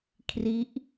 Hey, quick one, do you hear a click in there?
no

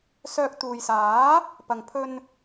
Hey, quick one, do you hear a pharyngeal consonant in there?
no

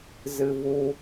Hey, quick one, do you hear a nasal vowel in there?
no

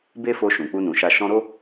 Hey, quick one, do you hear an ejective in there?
no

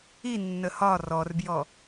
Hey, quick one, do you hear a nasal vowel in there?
no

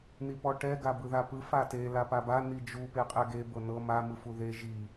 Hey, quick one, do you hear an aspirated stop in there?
no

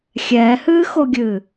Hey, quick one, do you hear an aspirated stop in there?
no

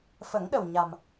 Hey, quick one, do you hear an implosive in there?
yes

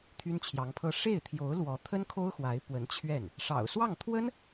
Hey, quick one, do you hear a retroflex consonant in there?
yes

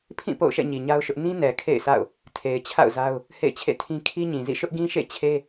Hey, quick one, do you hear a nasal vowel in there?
yes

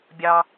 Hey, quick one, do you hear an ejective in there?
no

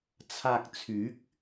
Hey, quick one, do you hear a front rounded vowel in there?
yes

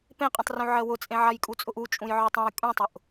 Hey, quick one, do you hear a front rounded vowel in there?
yes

